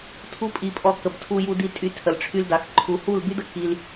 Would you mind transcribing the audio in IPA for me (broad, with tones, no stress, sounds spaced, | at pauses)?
tʰ u˦ pʼ i˧ pʼ ɔ˧ k ə˨ b tʰ u˧ j u˧ d i˧ tʼ y˧ tʰ ə˨ l ʈ͡ʂʰ y˧ l d a˨ x ǃʰ u˨ h u˦˨ l b y˦ d ə˦ k i˧ l